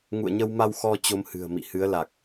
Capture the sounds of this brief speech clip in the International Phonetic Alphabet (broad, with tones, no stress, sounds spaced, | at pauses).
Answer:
ŋ ṵ˧˨ ə̯ ɲ ə˧ w m a˧ w x ɔ˧ t͡ɕ o˧ m h ɨ̤˨˩ ə̯ m ḭ˧˨ h ɨ˨˦ ə̯ l a˨˩ k̚